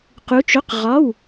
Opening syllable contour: rising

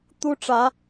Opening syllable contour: high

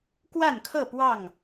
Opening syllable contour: falling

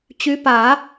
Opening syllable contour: rising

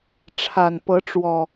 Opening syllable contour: low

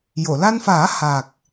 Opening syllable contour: low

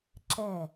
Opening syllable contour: falling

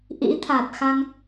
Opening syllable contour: rising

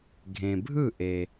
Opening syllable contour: low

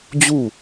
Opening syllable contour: falling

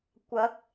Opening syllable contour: rising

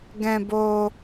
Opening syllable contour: high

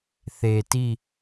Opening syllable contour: low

